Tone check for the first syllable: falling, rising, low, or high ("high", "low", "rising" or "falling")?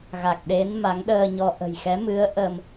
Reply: low